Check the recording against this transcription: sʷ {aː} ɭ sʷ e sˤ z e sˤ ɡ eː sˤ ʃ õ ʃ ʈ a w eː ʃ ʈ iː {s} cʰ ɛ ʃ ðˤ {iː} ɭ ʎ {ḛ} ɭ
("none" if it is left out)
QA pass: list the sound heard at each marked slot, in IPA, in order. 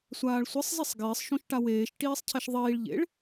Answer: aː, sˤ, iː, ḛ

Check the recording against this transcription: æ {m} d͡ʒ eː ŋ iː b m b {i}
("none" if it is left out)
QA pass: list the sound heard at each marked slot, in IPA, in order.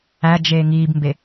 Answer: none, e

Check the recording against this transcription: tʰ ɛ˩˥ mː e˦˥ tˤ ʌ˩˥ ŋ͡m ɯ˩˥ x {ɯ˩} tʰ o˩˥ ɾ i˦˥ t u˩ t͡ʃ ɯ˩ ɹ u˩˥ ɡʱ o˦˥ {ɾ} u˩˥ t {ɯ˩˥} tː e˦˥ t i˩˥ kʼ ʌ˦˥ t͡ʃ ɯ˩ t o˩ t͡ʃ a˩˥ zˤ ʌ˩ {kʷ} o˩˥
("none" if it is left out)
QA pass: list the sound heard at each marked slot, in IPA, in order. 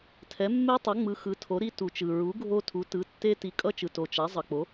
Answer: ɯ˩˥, tʰ, ɯ˩˥, k͡p

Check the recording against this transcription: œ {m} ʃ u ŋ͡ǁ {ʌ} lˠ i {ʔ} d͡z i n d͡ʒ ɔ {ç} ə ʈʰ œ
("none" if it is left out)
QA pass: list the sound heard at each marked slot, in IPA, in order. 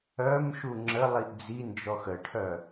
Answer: m, ə, ʔ, x

